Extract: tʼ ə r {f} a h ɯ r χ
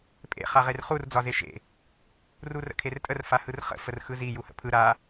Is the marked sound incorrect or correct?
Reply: correct